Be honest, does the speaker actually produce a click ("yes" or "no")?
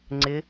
yes